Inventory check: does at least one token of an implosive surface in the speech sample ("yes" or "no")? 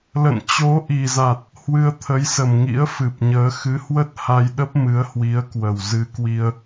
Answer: yes